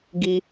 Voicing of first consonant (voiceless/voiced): voiced